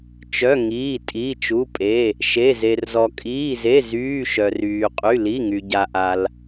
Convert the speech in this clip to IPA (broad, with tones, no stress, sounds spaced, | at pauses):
t͡ʃ œ˩˧˩ ŋ iː˩˧˩ tʼ iː˩˧˩ t͡ʃ u˩˧˩ pʼ e˩˧˩ | ʃ e˩˧˩ z e˩ r z ɔ˩ kʼ iː˩˧˩ z e˩˧˩ z yː˩˧˩ ʃ œ˩ r yː˩ qʼ y˩˧˩ l i˩˧˩ ŋ y˩ ɟ a˩ ʔ a˩ l